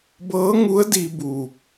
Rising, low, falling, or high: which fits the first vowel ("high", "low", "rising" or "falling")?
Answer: rising